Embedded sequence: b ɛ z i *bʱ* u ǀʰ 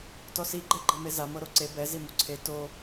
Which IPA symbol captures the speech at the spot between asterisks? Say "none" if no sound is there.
m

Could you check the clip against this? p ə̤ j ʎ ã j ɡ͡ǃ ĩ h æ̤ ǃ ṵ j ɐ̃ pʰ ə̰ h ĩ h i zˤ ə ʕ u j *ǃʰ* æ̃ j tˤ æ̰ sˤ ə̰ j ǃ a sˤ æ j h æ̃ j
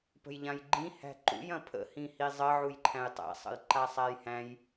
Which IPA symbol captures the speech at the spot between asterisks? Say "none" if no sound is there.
ǃʰ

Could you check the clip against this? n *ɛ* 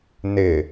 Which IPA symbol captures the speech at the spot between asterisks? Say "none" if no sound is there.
ɪ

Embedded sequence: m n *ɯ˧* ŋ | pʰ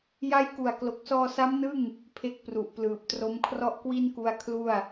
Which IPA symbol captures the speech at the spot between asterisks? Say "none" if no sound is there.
ɯ˥˩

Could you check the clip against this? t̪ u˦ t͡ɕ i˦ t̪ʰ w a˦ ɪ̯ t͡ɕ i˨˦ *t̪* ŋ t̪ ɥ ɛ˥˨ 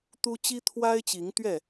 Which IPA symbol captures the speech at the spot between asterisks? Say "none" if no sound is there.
none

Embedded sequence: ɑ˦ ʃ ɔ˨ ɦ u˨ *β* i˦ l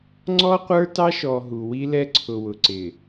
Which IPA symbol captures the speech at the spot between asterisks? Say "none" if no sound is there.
w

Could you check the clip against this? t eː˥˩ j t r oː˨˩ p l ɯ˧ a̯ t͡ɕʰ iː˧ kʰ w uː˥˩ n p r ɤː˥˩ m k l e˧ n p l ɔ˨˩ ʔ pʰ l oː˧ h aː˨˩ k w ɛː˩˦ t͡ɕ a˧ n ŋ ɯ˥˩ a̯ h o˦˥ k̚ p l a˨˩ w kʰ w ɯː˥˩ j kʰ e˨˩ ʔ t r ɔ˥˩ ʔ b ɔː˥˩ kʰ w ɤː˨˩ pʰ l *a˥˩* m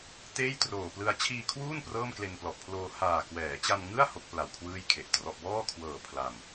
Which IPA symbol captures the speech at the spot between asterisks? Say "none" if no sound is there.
a˨˩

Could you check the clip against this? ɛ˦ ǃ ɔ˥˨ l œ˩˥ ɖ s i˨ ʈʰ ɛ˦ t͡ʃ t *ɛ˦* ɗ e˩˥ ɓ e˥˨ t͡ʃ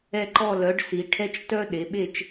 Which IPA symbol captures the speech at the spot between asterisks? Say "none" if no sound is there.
œ˦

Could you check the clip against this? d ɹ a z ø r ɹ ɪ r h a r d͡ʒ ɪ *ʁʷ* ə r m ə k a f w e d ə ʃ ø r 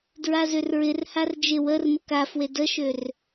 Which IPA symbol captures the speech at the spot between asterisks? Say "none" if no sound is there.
w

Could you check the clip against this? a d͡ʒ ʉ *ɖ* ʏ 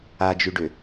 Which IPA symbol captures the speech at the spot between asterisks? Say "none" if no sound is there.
ɖ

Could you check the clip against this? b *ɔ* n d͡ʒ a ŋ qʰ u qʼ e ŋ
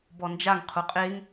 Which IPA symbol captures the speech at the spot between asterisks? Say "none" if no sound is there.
ɔ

